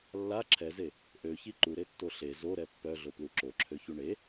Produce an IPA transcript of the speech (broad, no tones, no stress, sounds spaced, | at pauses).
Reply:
lː a ǁʰ ɛ z e | ʔ ø ç i ǃ u ɾ e tː o ɬ e z o ɾ ɛ pː œ ɮ o p l u ǁ o ǁʰ ø ç u ɳ e